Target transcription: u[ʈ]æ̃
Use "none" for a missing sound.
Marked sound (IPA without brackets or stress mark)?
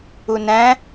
n